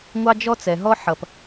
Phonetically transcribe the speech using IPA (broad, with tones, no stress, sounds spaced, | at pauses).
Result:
ŋʷ ɑ˥ d͡ʒ ɔ˥ t͡s ɛ˩ ɦ ɔ˥ ħ ʌ˩ p